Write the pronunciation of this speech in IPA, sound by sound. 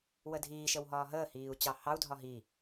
w ə dʱ iː ʃ ə w ɦ ɒː ɦ əː h iː u̯ t͡ɕ ɑ h ɑ u̯ dʱ ɒ ɦ i

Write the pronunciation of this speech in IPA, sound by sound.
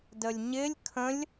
d ə lʲ ɲ ɪ lʲ kʰ ə̃ lʲ

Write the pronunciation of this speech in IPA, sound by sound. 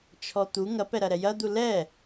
t͡ʃʰ ɔ t̪ u ŋ ɐ p ɛ ɾ ɐ ɾ ɛ j ɐ d̪ u l ɛ

